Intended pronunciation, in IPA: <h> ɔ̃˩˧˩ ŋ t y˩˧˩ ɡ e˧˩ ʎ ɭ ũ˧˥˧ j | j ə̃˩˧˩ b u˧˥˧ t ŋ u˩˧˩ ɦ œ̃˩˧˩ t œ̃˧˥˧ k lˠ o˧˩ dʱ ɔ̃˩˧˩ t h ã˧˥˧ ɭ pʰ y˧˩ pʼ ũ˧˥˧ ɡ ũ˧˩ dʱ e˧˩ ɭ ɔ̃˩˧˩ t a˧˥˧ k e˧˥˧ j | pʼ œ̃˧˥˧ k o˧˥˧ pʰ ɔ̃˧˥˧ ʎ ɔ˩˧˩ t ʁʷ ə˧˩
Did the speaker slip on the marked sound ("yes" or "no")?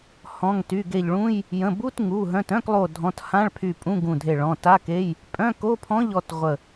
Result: no